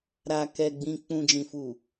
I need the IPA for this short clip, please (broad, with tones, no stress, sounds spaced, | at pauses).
ɾ a˨ k ɛ˨ ɡ͡b ĩ˨ k͡p ũ˨ d͡ʒ ĩ˨ f u˨